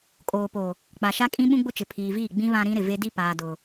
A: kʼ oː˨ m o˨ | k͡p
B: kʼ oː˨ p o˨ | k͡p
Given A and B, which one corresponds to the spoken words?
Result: B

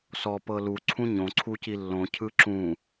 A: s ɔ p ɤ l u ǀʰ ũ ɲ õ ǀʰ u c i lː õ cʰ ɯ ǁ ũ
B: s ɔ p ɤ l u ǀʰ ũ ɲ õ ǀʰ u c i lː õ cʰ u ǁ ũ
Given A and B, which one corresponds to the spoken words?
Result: A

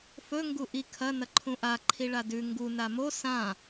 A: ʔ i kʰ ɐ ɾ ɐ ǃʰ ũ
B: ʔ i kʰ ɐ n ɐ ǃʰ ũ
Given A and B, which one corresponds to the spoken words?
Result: B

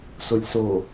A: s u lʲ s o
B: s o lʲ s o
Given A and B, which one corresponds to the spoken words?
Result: B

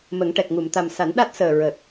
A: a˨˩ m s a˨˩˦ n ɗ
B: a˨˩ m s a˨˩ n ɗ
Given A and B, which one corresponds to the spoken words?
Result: A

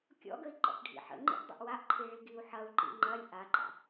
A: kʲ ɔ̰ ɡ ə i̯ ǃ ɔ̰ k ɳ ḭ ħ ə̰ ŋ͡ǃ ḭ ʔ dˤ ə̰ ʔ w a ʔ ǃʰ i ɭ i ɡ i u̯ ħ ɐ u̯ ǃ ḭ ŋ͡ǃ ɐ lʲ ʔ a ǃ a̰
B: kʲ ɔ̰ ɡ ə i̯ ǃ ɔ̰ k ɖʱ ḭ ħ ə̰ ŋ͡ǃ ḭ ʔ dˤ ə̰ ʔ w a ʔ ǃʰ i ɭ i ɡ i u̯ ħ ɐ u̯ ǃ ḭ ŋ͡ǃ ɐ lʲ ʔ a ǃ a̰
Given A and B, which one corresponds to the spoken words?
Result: B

